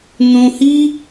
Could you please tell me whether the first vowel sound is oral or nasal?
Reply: nasal